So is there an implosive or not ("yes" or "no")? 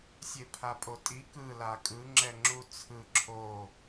no